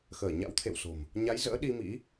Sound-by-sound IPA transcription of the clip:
x əː˧˩ ɲ a̰˧˥ w t̪ʰ ḛ˧˨ w s o̤˨˩ m | ɲ a˨˦ j z ə̰ː˧˥ ɗ i˧ m ḭ˧˥

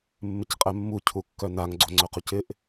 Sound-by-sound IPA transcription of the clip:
mː ɪ c qʼ ɛ mː u cʰ u kː œ n a ŋ ɡ͡ǀ o ŋ͡ǀ œ q u c ɪ ʔ

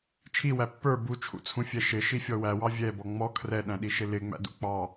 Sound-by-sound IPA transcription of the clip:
t͡ʃʰ i w æ pː ə˞ b u t͡ʃʰ ṵ t͡sʰ ũ fʲ ɛ ʃ ɪ ʃ i fʲ ɔ w æ w ɑ vʲ ɛ b ɔ ŋ͡m ɔ kʰ r ɛ ɗ æ̃ ɗ i ʃ ɪ l ɪ ŋ͡m æ̰ d ṵ k͡p ɑ

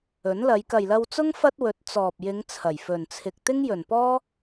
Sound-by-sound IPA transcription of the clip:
ɵ˨˥ n l ɐ˨˧ j k ɐ˨ j l ɐ˧ w t͡s ʊ˥ ŋ f ɐ˥ t̚ w ɵ˨˥ t̚ t͡s ɔː˨ p̚ j ɪ˨˧ ŋ t͡sʰ ɐ˨˩ j f ɵ˨ n t͡sʰ ɪ˧ k̚ t̪ ɪ˥ ŋ j ɵ˨˩ n p ɔː˥

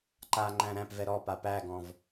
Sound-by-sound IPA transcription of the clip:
ǃ a ŋ͡ǃ æ̃ ɾ æ̃ p v ɛ ɾ ɔ p a p æ ɡ ɔ̃ v

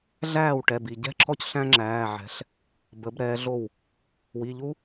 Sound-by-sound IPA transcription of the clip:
ɮ æː˥˩ w ʈ ɛ˩˧˩ b i˧˩ ɟ ɛ̤˥˩ ǁʰ ɔ˥˩ c ɬ æ̃˦ ŋ͡ǁ æː˩˧˩ ʕ ɛ̤˩˧ ɬ | b ə˩˧ b ɾ ɛː˩˧ ɮ o˧˩ w | w i˩˧˩ ʎ u˦

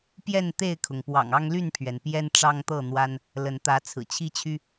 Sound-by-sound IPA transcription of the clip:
p j ɛ˥˨ n t̪ e˥˨ ɪ̯ kʰ ʊ˩ ŋ p w ɑ̰˨˩ ŋ ɑ˦ ŋ l y˥˨ n pʰ ɥ ɛ˩ n p j ɛ˦ n ʈ͡ʂ ɑ˦ ŋ t̪ ɤ˥˨ n̪ w a˦ n | l ə˨˦ n t̪ ä˨˦ t͡sʰ ɹ̩˨˩ t͡ɕʰ i˦ t͡ɕʰ y˦

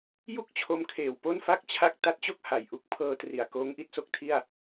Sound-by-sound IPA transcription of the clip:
j u˥˩ k̚ t͡ɕʰ o˧ m kʰ eː˨˩ w p o˥˩ n f a˥˩ k̚ t͡ɕʰ a˥˩ k̚ t a˦˥ t̚ t͡ɕ o˥˩ k̚ h a˨˩ j ʔ u˦˥ k̚ pʰ ɤː˧ t r i˨˩ a̯ k oː˦˥ ŋ ʔ i˦˥ t̚ s o˥˩ k̚ tʰ i˥˩ a̯

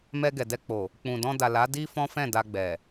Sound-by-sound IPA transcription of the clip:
m ɛ˧ ɡ ɛ˨ d ɛ˧ k͡p o˨ | k͡p ũ˨ d ɔ̃˧ d a˨ l a˨˦ d i˦ f ɔ̃˦ f ɛ̃˦˨ d a˧ ɡ͡b ɛ˨

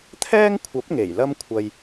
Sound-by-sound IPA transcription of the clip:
t̪ʰ ɛː˥ ŋ kʷʰ ɐ˨˥ p̚ ŋ e˨˩ j l ɐ˥ m kʷʰ ɐ˧ j

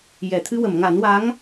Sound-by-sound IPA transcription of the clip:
j ɛ˨˩˨ t̪ʰ ɨ˧ w ə˨˩˨ m ŋ a˨˩˦ n w a˧˥ ŋ

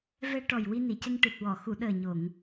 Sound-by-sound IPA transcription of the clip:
v ɛ˧ ʈ ɔ˨˩ j w i˧ n i˨˩˨ c ə˧ ŋ ʈ ɨ˨˩ t̚ w ɔ˨˩˨ x u˨˩˨ ɗ əː˨˩ ɲ o˨˩˨ ŋ

